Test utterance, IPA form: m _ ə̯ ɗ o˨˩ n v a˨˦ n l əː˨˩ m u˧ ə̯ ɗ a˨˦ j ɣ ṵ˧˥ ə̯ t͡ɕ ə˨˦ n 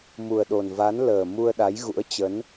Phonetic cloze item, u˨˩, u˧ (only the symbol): u˨˩